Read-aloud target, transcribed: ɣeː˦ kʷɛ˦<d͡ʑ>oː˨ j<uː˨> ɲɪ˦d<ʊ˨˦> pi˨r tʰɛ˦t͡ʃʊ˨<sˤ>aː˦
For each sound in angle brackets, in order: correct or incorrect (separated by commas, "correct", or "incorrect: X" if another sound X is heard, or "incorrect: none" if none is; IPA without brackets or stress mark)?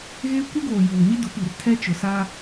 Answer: incorrect: ɡ, correct, correct, incorrect: s